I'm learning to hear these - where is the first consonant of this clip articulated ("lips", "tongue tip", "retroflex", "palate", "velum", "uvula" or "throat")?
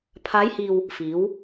lips